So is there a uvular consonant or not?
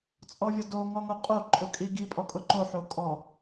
yes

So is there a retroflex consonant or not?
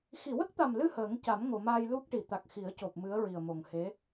yes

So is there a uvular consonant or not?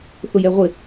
yes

